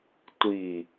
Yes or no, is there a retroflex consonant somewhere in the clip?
no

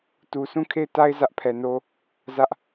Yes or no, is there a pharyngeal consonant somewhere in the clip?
no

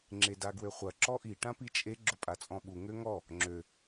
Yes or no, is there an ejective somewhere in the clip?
yes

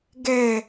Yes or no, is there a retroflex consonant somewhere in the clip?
no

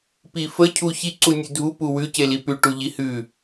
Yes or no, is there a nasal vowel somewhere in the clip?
no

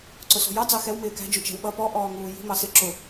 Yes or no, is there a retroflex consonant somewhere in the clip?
no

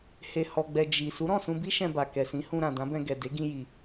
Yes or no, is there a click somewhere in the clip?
no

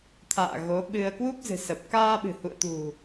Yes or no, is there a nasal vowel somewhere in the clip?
no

